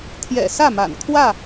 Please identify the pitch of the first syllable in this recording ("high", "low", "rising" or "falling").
low